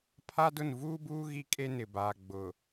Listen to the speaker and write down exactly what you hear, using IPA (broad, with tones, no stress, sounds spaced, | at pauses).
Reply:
pʰ a˦ d ʊ˦˨ n v uː˦ b uː˦ ɣ i˦ kʼ e˦ n ɪ˨ b aː˨ ɡ͡b ʊ˨